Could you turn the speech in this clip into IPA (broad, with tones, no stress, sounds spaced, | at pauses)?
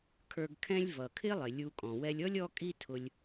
kʰ ə˞˧ ɡ kʰ ɛ̃˥ lʲ v ʌ˩ kʰ ɪ˥ lˠ ɪ˩ lʲ u˧ kʼ ɔ̃˩ w ɛ˧ lʲ ɔ˥ lʲ ɔ˥ kʼ i˥ tʰ ʊ˧ lʲ